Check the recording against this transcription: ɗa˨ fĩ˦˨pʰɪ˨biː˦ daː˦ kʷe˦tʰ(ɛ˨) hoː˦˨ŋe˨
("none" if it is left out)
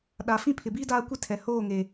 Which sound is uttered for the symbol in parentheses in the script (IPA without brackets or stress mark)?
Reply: ɛ˨